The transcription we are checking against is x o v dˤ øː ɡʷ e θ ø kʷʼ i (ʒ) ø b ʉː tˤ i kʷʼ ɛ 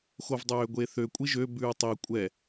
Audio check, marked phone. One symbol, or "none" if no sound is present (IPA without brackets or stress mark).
ʒ